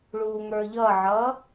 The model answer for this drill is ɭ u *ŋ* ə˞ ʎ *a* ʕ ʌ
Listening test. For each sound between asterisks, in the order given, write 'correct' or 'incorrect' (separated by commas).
correct, incorrect